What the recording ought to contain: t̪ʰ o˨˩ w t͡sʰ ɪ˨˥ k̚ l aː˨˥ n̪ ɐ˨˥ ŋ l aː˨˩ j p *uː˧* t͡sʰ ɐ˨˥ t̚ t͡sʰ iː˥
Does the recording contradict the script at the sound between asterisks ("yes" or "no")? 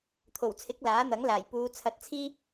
yes